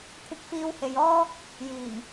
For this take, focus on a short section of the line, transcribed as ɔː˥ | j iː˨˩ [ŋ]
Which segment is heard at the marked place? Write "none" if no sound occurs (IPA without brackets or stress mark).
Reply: ŋ